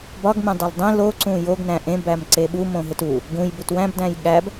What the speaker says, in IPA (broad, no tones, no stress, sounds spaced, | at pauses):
b ɒ ɡ m ẽ dˤ e l dˤ ĩ l o ǀ ũ j o ɡ n æ̃ ʔ ẽ b æ m ǀ e ɓ u m õ ɦ e t u | ɡ ũ j b u t w æ̃ b d æ̃ j ɠ æ b